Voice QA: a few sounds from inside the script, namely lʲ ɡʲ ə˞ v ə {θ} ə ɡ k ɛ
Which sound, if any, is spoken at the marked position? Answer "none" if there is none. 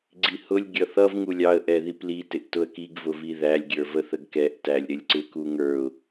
θ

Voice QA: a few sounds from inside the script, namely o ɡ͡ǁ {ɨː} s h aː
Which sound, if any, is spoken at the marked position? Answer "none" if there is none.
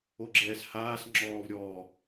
ɛː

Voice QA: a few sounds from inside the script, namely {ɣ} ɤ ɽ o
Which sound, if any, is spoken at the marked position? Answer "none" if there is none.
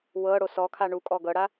w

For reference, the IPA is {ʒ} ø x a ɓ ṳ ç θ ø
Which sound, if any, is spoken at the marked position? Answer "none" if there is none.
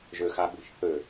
ʒ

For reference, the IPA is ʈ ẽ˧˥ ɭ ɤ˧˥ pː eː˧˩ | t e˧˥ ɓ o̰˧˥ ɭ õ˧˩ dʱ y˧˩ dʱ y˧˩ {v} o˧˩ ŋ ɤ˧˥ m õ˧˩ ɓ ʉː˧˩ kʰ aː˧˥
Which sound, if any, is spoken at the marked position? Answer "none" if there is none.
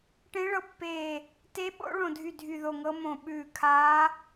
ð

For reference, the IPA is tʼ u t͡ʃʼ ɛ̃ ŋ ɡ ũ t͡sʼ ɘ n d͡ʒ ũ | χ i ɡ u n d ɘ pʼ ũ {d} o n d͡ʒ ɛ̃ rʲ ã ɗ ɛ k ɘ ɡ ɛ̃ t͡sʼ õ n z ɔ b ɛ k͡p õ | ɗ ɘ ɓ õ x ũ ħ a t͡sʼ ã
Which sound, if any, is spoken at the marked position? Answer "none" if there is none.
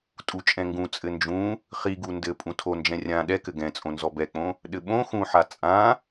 tʰ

